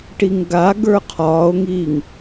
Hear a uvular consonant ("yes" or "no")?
yes